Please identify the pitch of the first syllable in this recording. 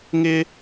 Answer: high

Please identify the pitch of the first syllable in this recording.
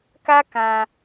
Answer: high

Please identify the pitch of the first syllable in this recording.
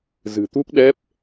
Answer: low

